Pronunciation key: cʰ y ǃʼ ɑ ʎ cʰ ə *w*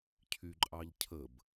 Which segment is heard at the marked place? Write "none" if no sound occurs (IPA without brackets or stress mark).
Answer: b